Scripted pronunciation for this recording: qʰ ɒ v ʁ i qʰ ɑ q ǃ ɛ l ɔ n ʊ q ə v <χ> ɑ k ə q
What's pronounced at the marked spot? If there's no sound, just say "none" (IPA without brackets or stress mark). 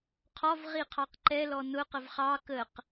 χ